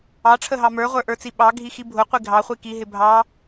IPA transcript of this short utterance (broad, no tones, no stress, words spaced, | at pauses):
ɑʈ͡ʂʰəɦɑ mə˞ʁʷə˞ʔə˞t͡si ɓɑɡʱixi bʱʊqʷi ɡʱɑχʷi kiɦɪ bʱɑ